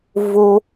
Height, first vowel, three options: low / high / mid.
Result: mid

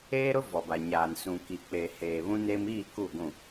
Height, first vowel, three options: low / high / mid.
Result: mid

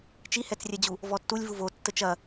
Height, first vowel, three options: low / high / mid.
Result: high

